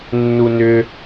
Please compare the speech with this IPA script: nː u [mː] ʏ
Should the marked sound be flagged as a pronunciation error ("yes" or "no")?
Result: yes